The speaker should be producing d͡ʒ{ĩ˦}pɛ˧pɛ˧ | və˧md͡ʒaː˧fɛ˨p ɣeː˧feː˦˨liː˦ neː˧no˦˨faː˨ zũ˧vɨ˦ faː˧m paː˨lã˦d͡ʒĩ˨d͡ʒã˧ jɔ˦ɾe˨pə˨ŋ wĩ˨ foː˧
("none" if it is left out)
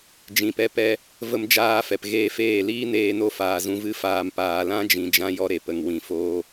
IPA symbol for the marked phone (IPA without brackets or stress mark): ĩ˨